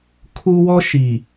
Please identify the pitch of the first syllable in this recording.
high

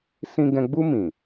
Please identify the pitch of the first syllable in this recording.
high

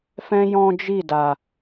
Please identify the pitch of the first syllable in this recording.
high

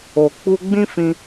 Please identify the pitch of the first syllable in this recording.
low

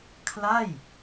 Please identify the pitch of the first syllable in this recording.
falling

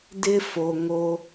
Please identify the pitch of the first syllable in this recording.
high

